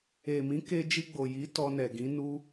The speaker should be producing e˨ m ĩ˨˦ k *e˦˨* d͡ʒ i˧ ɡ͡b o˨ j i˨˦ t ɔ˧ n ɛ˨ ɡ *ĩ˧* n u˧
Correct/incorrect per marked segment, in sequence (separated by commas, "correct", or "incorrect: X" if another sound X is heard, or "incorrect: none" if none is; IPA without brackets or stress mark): incorrect: e˧, incorrect: ĩ˨˦